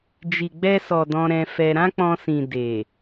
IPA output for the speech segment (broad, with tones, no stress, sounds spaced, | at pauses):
d͡ʒ i˨ ɡ͡b ɛ˧ s ɔ˨ d ɔ̃˧ ɾ ɛ̃˧ f ɛ˧ ɾ ã˦ k͡p ɔ̃˧ s ĩ˨ d e˨